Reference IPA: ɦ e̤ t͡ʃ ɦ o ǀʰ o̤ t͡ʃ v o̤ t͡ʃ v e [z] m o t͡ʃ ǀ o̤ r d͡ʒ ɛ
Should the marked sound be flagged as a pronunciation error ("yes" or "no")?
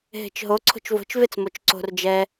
yes